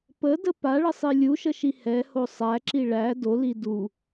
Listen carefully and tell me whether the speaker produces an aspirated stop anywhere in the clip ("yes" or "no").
no